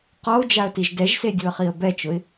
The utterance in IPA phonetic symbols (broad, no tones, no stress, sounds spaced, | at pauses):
q ɔ ʊ̯ d͡ʒ a ə̯ t i ʒ d ɛ ʒ s e dʲ u ə̯ χ i ə̯ b ɛ t͡ʃ ʊ ɪ̯